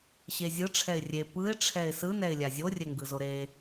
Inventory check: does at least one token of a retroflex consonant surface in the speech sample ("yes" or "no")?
yes